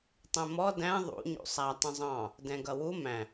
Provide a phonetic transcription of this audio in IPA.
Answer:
tˤɛ̃mɔ dæ̃ ðˤṵ ɲṵsˤæ tˤə̃zˤɑ̃ | dɛ̃ɡʌwu mæ̃

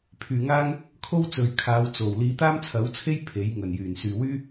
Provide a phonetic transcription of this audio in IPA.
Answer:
pʰyː˨ŋaː˥ŋ | kʰo˥wt͡sɵ˨ɥkʰaː˨˧w t͡so˨˩w liː˨˧t̪aː˥mt͡sʰɐ˨˥wt͡sʰe˥j pʰe˨˥jŋɵ˨˩n jyː˨˩nsyː˨wyː˥

